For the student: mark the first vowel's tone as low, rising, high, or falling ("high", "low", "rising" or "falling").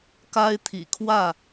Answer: high